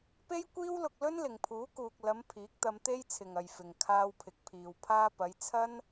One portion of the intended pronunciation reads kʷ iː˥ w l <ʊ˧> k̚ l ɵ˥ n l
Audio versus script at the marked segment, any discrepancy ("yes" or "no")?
no